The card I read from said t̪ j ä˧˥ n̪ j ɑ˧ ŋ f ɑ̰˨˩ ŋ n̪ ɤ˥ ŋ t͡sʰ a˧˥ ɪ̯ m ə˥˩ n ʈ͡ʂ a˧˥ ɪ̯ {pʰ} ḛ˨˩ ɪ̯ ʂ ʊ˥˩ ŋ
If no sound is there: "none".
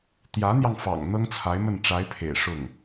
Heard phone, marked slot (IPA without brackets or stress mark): pʰ